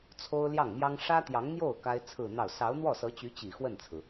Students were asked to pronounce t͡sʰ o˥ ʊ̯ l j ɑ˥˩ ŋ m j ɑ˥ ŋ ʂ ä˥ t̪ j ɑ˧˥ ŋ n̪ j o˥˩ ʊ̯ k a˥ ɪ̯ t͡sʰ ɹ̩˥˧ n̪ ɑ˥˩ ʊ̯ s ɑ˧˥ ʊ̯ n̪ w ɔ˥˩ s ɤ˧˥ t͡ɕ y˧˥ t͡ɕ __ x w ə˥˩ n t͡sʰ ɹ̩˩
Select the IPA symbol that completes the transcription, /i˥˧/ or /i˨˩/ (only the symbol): i˨˩